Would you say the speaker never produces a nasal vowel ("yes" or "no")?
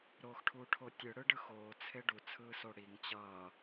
yes